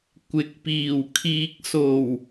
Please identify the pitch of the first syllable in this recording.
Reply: rising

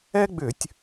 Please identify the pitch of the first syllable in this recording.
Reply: high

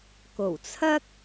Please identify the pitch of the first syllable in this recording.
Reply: low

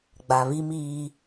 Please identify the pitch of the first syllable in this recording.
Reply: low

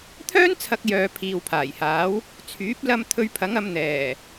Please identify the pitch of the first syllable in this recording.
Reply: high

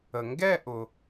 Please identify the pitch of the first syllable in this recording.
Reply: low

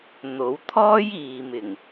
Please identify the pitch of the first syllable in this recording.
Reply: rising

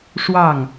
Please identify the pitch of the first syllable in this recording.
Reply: falling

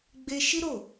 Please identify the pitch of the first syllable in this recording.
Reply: high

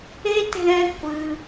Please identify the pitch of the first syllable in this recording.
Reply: high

